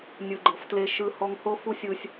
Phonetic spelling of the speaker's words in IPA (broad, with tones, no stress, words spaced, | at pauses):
nʲɯ˨ɡ͡ǃɤ˨ftle˧ ʃɯ˧ hɔ˧ŋho˦ fu˦sʲɯ˧sʲ